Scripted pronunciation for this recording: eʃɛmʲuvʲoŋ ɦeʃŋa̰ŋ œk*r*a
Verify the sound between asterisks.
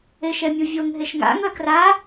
correct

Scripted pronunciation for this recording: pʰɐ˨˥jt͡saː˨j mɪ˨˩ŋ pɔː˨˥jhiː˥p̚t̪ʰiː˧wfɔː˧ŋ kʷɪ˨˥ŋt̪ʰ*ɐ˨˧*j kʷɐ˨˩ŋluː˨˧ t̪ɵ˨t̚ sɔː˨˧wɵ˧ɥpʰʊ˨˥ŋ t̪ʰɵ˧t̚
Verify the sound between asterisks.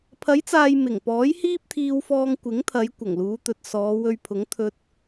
correct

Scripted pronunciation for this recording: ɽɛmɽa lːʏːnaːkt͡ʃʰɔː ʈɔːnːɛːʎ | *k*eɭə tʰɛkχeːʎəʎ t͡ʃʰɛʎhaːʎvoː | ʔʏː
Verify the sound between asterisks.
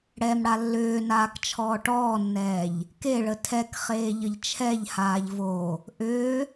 correct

